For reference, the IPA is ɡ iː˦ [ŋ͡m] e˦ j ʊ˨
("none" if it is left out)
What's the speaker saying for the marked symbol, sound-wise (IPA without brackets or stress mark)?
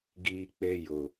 k͡p